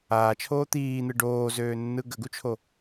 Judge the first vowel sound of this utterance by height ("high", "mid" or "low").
low